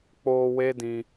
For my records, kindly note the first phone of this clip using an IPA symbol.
k͡p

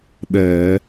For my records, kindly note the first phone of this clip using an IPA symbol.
ɗ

